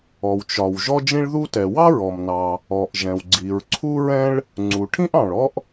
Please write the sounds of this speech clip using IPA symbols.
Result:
ɔ˩ w t͡ʃ ɒ˩ w ʒ ɔ˥ d͡ʒ ĩ˥ ɭ ð u˥ t ɛ˩ w ɑ˥ ɹ ɔ˩ m n ɑ˩ | ɔ˩ ʔ ʒ ɛ̃˩ w ɡ͡ǀ i˩ ɹ ǀʰ u˥ ɹ ɛ̃˥ ɭ | ŋ͡ǀ u˩ ʈʰ ĩ˥ ʔ ɑ̃˩ ɭ ɔ˥ ʔ

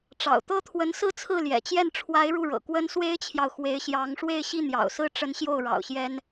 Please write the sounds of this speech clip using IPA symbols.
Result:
ʈ͡ʂ ɑ̰˨˩ ʊ̯ t̪ ɤ˥ t̪ʰ w ə˧˥ n s ɹ̩˥˧ t͡sʰ ɹ̩˥˩ l j ɛ̰˨˩ t͡ɕ j ɛ˥˩ n ʈ͡ʂʰ w a˧˥ ɪ̯ ɻ u˥˩ ɻ ɤ̰˨˩ k w ə˥ n s w e˥ ɪ̯ t͡ɕʰ j ɑ˨ ʊ̯ x w e˧˥ ɪ̯ ɕ j ɑ˧˥ ŋ ʂ w e˥˧ ɪ̯ ɕ i˥˩ n̪ j ɑ̰˨˩ ʊ̯ s ɹ̩˥˩ ʈ͡ʂ ə˧˥ n ɕ j o˥˩ ʊ̯ ɻ ɑ̰˨˩ ʊ̯ ɕ j ɛ˥ n

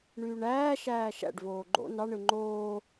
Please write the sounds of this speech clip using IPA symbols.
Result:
ɳ yː ɳ æː ʃ æː ʃ æ̰ ɖ v oː ɡ͡ǃ o̰ n ɑ ɳ ɯ ŋ͡ǃ oː

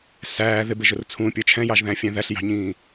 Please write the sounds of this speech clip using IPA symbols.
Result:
s æː ð ɪ b ɪ ʒ ʊ r t͡sʰ ũ pʲ ə˞ t͡ʃʰ ɛ̃ j ɑ ʒ ð æ̃ fʲ ɛ̃ ð æ ɬ j ɑ̤ ɲ ĩː

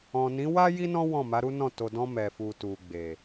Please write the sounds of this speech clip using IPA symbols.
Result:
ɔ̃˨ n ĩ˨˦ w a˦ j i˦ n ɔ̃˦ w ɔ̃˦˨ m a˨˦ ɾ u˦ n ɔ̃˦˨ t o˨ d ɔ̃˧ m ɛ˨ f u˨ t u˨ ɡ͡b e˨

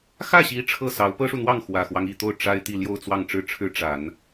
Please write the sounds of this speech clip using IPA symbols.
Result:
x ä˥˩ ɕ i˧˥ ʈ͡ʂʰ ɤ˥˩ s ɑ˧˥ ʊ̯ p ɤ˥ ʂ u˨ n̪ w ɑ˥˩ ŋ x w ä˨˩ x w ɑ˦ ŋ i˨˩ t̪ o˥˩ ʊ̯ ʈ͡ʂ a˥ ɪ̯ t̪ i˥˧ l j o˥˧ ʊ̯ t͡s w ɑ˥˧ ŋ ʈ͡ʂ ɻ̩˥˩ ʈ͡ʂʰ ɻ̩˥ ʈ͡ʂ a˨˩˦ n

